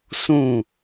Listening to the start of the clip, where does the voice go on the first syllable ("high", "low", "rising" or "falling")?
falling